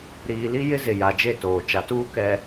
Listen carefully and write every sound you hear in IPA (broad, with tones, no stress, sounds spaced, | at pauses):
ɾ iː˨ l i˦ j ɪ˦ z ɪ˨ j a˨ d͡ʒ e˦˨ t oː˨ t͡ʃ a˨ t uː˦ k ɛ˨